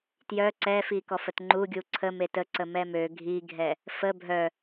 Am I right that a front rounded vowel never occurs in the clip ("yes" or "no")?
no